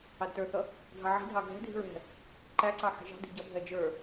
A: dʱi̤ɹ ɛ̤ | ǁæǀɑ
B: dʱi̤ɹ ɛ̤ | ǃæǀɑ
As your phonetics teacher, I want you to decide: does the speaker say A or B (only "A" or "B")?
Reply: B